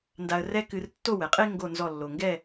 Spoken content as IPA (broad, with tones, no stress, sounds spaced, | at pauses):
n d a˧ ə̯ r ɛ˥ k ɨ˧ r tː o˥˧ w ɛ˩˧ qʼ e˥ ŋ ɡ o˥˧ n z ɔ˥˧ lː o˧ ŋ ɡ ɛ˥˧